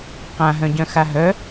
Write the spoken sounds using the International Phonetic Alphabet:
q ã ɦ œ̃ ɟ œ̃ x a ɦ œ

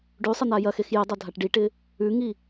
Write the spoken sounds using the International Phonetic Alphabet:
ɖ ʉ sˤ ə n̪ a j ɐ x e x j ɪ dˤ ɐ dʱ a ʈ ɖ i ʈ ɪ | ʉ ŋ i

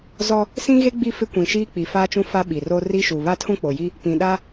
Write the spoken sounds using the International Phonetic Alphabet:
z ɔ˦ | s ĩ˦ ɣ e˦ ɡ͡b i˦˨ f ɪ˦ kʷ ĩ˨ ʃ iː˦ k͡p i˨ f aː˦ t͡ʃ ũ˦ f a˦ ɓ i˨ r o˦ r i˦ ʃ u˨ β a˦ tʰ ũ˦ k͡p o˨ j i˦ | p ĩ˨ ɗ a˦

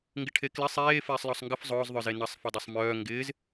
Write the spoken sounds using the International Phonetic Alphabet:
ŋ ɡ ɪ ʈʰ e k l ɪ sˤ eː f ɪː sˤ l ɔ sˤ ŋ ɡ ə f zˤ ʊː z ðˤ œ z e n ɐ sˤ f ɐ dˤ ɐ sˤ m œː ŋ ɡ ɪː z

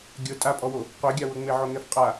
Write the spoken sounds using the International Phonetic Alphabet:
ɡʲ ɤ tʼ a pʼ ɔ w o | qʷ e ɡʲ a w ɤ ŋ͡m e ʕ o ŋ ɛ f qʼ a

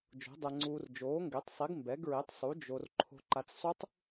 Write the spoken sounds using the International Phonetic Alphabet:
d͡ʒ o̤˨˥ dˤ ɛ˧ ŋ͡ǀ uː˧ r d͡ʒ oː˨˥ ŋ ɡ e˨˥ tˤ sˤ i˨˥ ɡ m b ɛ˨˥ ɡ ɹ e˨˥ tˤ sˤ u˨˥ d͡ʒ o˧ r ǃʰ o̤˧ ǃ a˧ t͡s sˤ u˦˥ tˤ

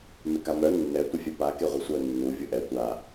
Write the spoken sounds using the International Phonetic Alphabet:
m ɪ k a m œ nː ɛ tʷ ɪ fʲ ɛ p a k e ʁʷ ɪ sʷ œ nː u vʲ u ʔ ɛ tʷ a

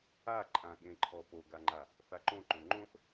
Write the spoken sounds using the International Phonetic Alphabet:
a ǃʼ ã ɠ ẽ ǃʰ ɔ p o ɡ a ŋ͡ǃ a | θ a ǃ õ ǃ õ ŋ͡ǃ õ θ

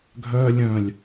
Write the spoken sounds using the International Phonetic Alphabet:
ɡʱ œ lʲ œ̃ lʲ

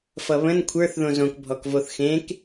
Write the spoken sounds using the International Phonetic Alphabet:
f ʌ β ə̃ n kʷʰ ə˞ θ ð õ z õ k bʱ ɔ k v o θ x ẽ k

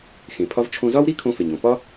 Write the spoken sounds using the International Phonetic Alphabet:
x ẽ˩ pʰ ɒ˧ v t͡ʃʰ õ˧ z ɒ˥ w ɾ i˥ kʰ õ˧ f e˩ ɲ õ˩ p ɒ˥

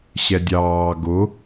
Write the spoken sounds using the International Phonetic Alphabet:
ɕ ɛ dʲ ɑː ɡ ʊ

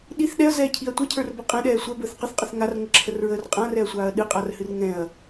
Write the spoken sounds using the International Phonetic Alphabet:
ɗ i θ ɗ ɛ ɐ̯ z ɛː cʰ i ɐ̯ tʷ ɛ cʰ ə˞ r b ə qʼ ɛ̃ ɗ ɛː sʷ ɛ b əː θ q ə θ qʼ ə θ ŋ a r ŋ ə ǁʰ ə r ɹ əː r qʼ ã r ɛ ɐ̯ sʷ aː ɐ̯ ɗ ɨ qʼ a r h ɨ r ŋ ɛ̃ ɐ̯

